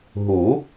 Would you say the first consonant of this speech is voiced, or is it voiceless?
voiced